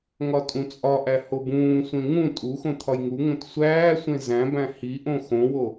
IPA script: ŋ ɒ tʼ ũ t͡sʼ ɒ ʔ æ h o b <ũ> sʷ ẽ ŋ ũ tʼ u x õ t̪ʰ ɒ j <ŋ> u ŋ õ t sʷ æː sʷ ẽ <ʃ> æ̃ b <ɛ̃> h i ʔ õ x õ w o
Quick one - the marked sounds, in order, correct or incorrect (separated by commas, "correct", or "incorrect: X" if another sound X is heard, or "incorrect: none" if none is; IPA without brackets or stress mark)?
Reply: incorrect: ũː, correct, incorrect: z, incorrect: æ̃